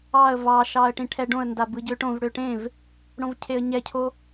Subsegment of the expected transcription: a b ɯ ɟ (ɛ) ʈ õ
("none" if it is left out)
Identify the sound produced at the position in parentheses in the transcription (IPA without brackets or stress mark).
ø